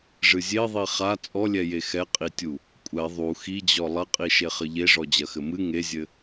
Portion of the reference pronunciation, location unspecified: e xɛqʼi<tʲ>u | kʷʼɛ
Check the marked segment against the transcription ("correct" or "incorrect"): correct